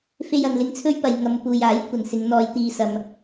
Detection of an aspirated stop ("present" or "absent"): present